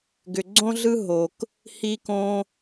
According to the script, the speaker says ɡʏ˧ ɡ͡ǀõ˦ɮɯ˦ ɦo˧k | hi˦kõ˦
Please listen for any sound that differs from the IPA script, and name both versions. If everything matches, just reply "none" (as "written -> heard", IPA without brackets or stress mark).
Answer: none